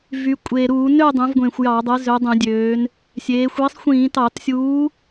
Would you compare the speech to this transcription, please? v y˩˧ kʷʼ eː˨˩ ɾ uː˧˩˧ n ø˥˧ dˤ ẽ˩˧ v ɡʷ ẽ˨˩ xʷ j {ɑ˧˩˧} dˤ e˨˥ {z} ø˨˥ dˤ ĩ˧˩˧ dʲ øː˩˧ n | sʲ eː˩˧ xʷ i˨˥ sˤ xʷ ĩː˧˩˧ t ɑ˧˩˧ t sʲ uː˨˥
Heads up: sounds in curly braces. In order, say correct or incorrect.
correct, correct

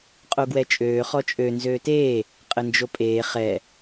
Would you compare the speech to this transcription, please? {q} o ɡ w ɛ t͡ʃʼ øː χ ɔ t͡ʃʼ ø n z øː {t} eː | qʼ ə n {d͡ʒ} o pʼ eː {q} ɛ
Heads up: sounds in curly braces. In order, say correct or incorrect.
incorrect, correct, correct, incorrect

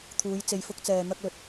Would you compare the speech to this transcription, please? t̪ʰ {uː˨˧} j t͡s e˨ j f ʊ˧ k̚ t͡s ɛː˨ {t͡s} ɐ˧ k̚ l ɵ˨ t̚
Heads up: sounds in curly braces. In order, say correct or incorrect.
correct, incorrect

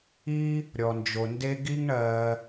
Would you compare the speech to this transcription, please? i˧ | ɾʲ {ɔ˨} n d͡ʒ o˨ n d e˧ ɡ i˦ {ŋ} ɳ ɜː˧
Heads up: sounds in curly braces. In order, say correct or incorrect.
correct, correct

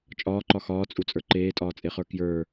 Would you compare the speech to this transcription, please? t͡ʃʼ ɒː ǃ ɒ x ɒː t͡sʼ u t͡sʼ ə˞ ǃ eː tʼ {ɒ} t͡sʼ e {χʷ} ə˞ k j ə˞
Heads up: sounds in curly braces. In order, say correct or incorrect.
incorrect, incorrect

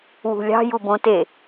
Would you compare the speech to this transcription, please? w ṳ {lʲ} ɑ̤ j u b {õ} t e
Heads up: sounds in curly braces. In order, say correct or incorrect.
correct, correct

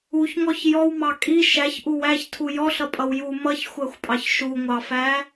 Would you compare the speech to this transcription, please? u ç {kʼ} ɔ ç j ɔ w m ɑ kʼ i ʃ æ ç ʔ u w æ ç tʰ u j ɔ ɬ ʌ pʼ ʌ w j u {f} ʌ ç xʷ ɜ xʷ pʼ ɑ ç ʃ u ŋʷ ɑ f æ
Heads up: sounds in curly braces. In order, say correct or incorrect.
incorrect, incorrect

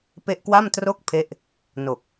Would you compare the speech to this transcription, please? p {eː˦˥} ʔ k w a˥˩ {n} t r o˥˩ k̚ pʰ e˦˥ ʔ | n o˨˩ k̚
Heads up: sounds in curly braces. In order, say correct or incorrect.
incorrect, incorrect

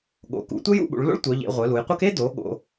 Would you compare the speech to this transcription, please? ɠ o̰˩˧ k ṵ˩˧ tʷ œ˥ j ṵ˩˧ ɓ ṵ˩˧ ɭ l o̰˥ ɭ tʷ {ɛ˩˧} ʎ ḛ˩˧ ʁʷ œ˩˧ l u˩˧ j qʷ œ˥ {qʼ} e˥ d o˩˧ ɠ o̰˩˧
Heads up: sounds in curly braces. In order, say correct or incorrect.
incorrect, incorrect

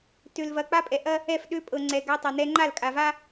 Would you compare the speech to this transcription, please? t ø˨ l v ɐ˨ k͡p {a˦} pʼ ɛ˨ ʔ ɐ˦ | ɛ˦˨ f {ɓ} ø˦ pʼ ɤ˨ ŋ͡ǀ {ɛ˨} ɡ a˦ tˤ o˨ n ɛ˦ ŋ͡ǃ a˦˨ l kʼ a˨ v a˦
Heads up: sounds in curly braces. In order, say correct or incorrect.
correct, incorrect, correct

